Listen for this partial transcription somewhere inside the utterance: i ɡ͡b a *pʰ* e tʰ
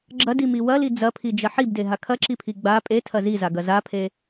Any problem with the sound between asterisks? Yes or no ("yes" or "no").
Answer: yes